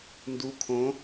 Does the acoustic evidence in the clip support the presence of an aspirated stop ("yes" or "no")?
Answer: yes